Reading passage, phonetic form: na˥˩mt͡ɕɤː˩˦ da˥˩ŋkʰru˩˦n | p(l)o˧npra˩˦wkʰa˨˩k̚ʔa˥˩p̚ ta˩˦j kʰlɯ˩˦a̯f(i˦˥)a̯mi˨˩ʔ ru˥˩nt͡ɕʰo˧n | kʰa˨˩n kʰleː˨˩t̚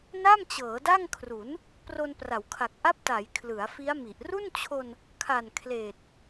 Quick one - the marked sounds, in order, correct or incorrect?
incorrect, correct

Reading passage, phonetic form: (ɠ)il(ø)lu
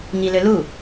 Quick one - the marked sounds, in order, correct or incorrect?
incorrect, correct

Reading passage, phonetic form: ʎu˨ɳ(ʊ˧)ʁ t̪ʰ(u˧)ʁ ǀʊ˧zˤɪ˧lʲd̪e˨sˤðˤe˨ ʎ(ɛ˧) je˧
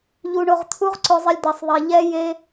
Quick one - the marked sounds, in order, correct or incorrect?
incorrect, correct, correct

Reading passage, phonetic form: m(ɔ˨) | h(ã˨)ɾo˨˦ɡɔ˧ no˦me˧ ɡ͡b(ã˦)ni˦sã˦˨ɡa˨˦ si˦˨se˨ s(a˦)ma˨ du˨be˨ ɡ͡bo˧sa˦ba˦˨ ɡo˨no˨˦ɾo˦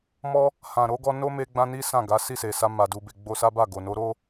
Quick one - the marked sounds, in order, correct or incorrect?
incorrect, correct, correct, incorrect

